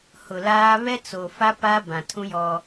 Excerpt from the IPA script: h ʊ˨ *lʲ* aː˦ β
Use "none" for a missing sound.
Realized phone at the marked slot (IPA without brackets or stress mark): l